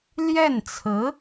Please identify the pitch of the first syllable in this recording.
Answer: falling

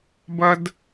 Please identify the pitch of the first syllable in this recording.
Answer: high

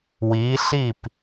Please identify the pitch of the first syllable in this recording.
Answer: rising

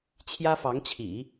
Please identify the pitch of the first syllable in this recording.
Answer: high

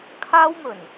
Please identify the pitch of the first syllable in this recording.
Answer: high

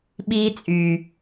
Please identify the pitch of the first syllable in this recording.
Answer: high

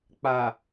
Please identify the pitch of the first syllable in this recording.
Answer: low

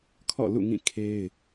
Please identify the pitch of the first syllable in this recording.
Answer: falling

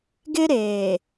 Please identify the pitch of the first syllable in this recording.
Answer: high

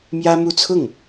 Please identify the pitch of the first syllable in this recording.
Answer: high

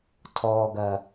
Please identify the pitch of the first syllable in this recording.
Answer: low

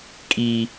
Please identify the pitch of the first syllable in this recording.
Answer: high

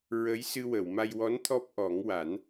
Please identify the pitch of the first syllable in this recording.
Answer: rising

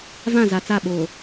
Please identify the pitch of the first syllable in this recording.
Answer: falling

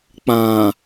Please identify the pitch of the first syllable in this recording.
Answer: low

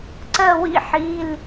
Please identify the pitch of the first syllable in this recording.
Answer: falling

